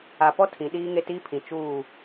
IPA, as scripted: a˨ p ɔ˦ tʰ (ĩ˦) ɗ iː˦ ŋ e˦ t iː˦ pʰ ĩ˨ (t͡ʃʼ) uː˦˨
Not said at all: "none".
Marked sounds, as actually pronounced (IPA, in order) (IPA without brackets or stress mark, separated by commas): ĩ˨, t͡ʃ